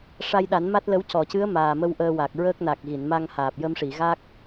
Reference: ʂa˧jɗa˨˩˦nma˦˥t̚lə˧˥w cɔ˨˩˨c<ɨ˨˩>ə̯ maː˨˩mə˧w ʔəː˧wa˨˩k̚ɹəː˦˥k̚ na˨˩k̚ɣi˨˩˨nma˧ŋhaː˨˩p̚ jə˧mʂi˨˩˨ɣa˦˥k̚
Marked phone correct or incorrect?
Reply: incorrect